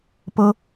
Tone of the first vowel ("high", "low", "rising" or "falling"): high